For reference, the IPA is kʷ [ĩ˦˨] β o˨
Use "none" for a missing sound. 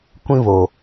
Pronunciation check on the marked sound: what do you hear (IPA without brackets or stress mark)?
ĩ˦